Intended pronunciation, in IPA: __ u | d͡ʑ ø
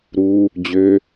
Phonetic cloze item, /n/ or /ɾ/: ɾ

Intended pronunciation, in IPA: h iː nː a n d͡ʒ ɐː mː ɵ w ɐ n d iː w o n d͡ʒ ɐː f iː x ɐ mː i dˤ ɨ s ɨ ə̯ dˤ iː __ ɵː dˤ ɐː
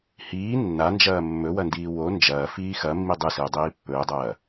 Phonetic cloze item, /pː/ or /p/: pː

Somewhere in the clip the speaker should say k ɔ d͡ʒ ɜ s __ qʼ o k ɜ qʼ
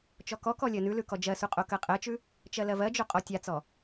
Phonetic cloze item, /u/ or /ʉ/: u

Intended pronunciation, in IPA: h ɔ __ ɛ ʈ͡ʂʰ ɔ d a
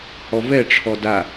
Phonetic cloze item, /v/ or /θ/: v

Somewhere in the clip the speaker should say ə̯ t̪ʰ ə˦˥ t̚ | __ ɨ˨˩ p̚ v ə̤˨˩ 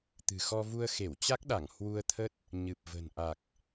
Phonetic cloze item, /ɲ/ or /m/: ɲ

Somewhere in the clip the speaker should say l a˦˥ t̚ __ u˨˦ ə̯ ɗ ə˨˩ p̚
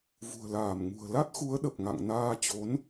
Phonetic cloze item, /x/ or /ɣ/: x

